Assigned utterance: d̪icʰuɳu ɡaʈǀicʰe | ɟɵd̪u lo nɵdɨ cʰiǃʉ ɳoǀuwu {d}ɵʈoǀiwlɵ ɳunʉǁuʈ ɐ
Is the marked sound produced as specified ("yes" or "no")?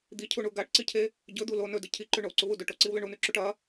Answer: yes